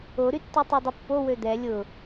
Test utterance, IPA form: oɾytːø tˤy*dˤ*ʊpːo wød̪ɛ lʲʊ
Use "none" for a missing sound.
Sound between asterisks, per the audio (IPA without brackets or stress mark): dˤ